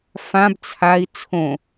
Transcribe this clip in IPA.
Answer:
f ã b t͡sʰ a i̯ t͡sʰ õ

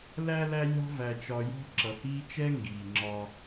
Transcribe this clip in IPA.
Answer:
l æ˦ l æ˦ lʲ ɑ̤˦ v æ˧ t͡ʃ ɒ˧ j ɔ̤˦ ǁ ʌ˨ h iː˦ t͡ʃ ɛ˦ ŋ ɡ iː˨ ŋ͡ǁ ɒ˧

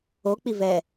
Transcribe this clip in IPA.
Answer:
o k͡p i v ɛ

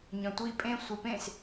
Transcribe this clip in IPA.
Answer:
ɲ œ̃ tʷ i pʼ ẽ sʷ i p ẽ s

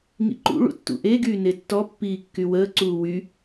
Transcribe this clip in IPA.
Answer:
ŋ ḭ ǃ ṵ ɭ ṵ tː ṵ ʔ e ɡ yː n e tː ɔ pː iː kː y w əː ǀ uː w y

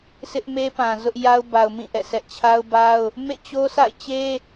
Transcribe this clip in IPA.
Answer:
sʰ ɪ˦ ʔ m e˦ p ã˨ z ʊ˦ ʔ j a˦ ʊ̯ b a˨ ʊ̯ m ĩ˦˨ ʔ ɛ̰˦˨ s ɛ˦ ʔ t͡ɕʰ a˦ ʊ̯ b a˦ ʊ̯ | m ḛ˦˨ t͡ɕ o˦ s a̰˦˨ ɪ̯ t͡ɕ e˦

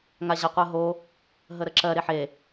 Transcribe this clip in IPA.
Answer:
ŋ a ʑ a qʷ ɜ ɦ o | ɦ ə ɾ ə ǁ ɜ ɾ e ħ e

